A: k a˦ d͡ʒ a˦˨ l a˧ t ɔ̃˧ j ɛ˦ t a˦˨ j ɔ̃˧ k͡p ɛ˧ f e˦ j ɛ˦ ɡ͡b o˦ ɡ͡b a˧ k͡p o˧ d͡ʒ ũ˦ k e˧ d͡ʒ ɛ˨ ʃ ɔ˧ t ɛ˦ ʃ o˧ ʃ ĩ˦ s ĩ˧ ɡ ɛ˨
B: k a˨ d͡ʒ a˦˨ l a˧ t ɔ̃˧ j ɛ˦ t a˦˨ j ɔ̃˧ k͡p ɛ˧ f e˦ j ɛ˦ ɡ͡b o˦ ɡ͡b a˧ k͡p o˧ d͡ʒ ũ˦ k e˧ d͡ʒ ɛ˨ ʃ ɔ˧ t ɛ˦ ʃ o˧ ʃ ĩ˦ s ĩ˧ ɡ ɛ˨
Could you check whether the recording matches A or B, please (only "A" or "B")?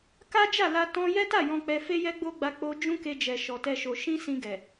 A